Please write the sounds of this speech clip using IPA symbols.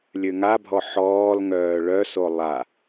lʲ ø ŋ a bʱ ɔ ħ ɔː l ŋ œː ɭ œ s o lˠ a

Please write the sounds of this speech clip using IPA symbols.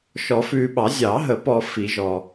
ʃ ɔ˨˩˦ f ʉː˨ ɓ ɑ˨˩˦ zʲ ɑ˨˩˦ ɦ ə˨˩˦ p ɔ˨ f i˨˩˦ ʒ ɔ˨

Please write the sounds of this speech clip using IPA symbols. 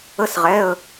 ə˧˥˧ s ʁ ɛ˩˧˩ ə̯

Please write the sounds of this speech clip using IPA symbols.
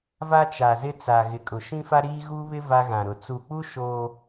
v a˦ t͡ʃ a˨ z ɪ˦ t͡s a˨ ɣ ɪ˨ kʼ ʊ˨ ʃ ĩ˦ f a˦ ɾ iː˦ ɣ u˦ β ɪ˦ v a˦ ɣ ã˨ ɾ ʊ˨ t͡s u˨ k͡p u˦ ʃ o˦

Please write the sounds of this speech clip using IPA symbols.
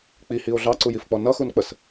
k͡p i h i o̯ ɮ ɑ ǀ u j i f k͡p ɔ n ʌ x u n k͡p ə s

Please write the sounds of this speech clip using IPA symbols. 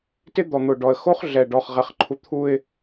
t ɪ˦ d̪ ɔ˨ n̪ ʊ˨ ɖ ɔ˨ ə̯ x o˦ χ ɮ ɛ˨ ɖ ɔ˨ χ ʁ ɛ˨ χ ǃʰ u˨ t̪ʰ u˨ ɪ̯

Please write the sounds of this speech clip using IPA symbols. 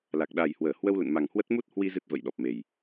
l a˨˩ k̚ ɗ a˨˩ j h w əː˧˩ h w ə˧ w l ə̰˧˨ n m a˨˩ ŋ h w ə˦˥ t̚ m u˦˥ t̚ h w i˧ z ɨ˦˥ t̚ v ə̰˧˨ j ɗ ɔ˨˩ p̚ m e˨˩ j

